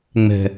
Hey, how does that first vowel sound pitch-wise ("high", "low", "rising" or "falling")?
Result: low